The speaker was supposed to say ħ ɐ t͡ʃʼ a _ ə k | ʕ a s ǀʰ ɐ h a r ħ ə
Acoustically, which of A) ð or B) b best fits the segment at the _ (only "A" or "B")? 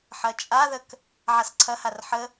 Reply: A